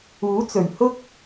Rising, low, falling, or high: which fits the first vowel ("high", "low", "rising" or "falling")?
rising